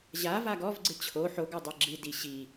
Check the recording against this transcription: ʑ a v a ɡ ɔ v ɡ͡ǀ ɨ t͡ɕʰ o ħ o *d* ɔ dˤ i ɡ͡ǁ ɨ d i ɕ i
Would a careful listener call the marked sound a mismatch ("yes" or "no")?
yes